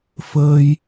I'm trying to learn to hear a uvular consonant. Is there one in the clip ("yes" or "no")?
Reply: no